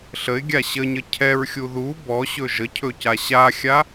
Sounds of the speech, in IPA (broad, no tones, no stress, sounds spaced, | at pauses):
ɬ ə ɪ̯ ɡʲ a ɕ ə ɲ ə cʰ ɛ ɹ xʲ u ð u b ɔ ɕ ɵ ʒ ə cʰ ɵ c a ɕ a xʲ a